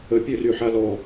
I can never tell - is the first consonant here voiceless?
yes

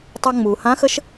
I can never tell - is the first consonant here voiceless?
yes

